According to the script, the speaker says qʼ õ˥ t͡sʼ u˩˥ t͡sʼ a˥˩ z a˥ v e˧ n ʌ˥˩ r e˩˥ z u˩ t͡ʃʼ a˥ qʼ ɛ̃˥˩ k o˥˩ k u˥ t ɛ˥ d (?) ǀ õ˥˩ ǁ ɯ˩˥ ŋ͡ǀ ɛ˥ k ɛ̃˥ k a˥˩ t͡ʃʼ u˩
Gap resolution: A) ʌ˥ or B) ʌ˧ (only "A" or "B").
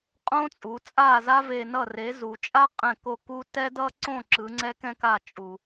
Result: A